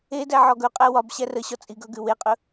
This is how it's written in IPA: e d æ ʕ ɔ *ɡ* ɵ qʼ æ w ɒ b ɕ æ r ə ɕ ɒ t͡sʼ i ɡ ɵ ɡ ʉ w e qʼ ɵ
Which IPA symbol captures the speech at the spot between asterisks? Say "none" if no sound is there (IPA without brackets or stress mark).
ɡ